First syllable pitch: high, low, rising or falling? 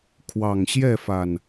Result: low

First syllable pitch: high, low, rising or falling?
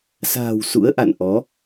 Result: low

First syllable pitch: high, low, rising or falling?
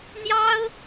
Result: high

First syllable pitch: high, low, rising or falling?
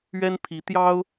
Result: high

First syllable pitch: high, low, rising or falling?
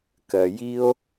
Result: low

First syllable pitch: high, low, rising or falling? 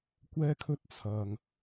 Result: high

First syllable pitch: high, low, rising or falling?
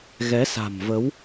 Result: rising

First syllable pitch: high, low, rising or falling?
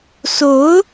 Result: rising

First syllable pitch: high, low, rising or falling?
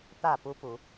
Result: falling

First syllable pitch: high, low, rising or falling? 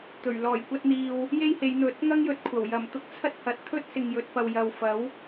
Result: low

